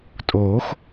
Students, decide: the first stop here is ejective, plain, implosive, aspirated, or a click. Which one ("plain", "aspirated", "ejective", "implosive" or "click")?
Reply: ejective